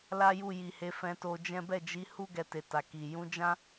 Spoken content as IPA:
l a˦ j u˦˨ j i˨ h e˨˦ f ɛ̃˧ t o˧ d͡ʒ ɛ̃˦ b ɛ˦˨ d͡ʒ i˨˦ h u˦ ɡ ɛ˧ t e˨ t a˨ k i˨ j ũ˨˦ d͡ʒ ã˦

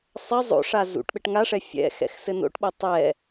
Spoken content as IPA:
sˤ ɛ zˤ o̰ ʂ a z ṵ ʈ ɓ ɘ ʈ ŋ a ʂ ɛ fʲ ɛ̰ x ɛ̰ x s ɘ n o̰ ʈ ɓ o tˤ ɛ

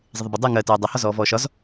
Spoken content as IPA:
zˤ ɪ ðˤ ə b ʊ dˤ əː ŋ ɜ t ɜː dˤ ɑ h ɒ z ɔː v ɔː ʃ ɒ z

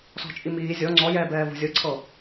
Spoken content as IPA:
s ɔ̤ t͡ʃʼ i m iː zʲ ɔ ŋ͡ǀ ɔ j ɛː b ɛː v o̤ zʲ ɤ ǀʰ ɤ

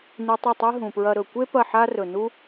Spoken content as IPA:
n i˧ tˤ ɐ˦˨ tˤ e˦ ɦ ũ˨ p ɹ ɐ˧ ɾ ɵ˨ kʷ e˦ p ɐ˦˨ ħ a˦ r ɵ˨ n u˧

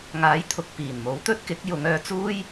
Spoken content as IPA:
ŋ aː˨˥ j t̪ʰ ʊ˨ k̚ p iː˨˩ n m o˨˥ w t̪ ɵ˥ t̚ k ɪ˨˥ k̚ j ʊ˨˧ ŋ œː˧ t͡s uː˥ j

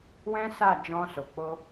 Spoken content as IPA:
w ɛ̃˦ s a˦˨ d͡ʒ ɔ̃˧ s o˨ k͡p o˧

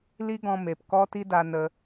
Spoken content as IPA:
l i˦ ɡ ɔ̃˧ m e˨ p k ɔ˦ t i˦ d a˧ n ə˧

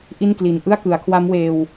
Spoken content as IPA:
ʔ i˥˩ n k l i˨˩ n ʔ ɯ˥˩ a̯ k ɯ˩˦ a̯ kʰ w a˦˥ m w eː˧ w

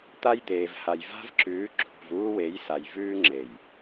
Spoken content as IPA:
t̪ a˦ j d̪ eː˨ v h a˨ j v a̤˦ v ǁ ʉː˨˦ ǁʰ ṳ˨ v uː˦ w e˨˦ j s a˨ j v ʉː˦ ŋ͡ǁ e˨ j

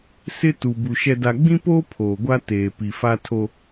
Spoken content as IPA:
s ɪ˦ t u˨ b u˨ ʃ ɛ˨ d a˨ ɡ͡b ĩ˦ p oː˦ pʰ oː˨ ɡʷ a˦ t eː˨ p i˨ f a˦ tʰ o˦

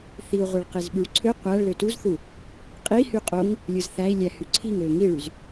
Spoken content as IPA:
θ i u̯ ʁʷ e ɭ q e z ɓ y ɭ ǀʰ ø qʷ æ ɭ l ø t u z θ u | qʼ i h y qʼ o ŋ | lʲ ɯ z θ æ i̯ lʲ æ h y ǀʰ i ŋ ø ŋ i ɭ y z

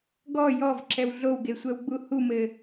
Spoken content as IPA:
ɡ ɔ j ɔ v ǁ ɛ w ɮ o w ɡ e sʷ ɛ w ɡ͡b u h u m ɘ

